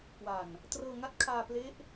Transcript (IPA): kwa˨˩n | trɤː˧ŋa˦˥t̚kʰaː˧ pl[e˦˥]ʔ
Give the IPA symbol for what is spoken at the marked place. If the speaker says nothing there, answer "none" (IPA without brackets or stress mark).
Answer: e˦˥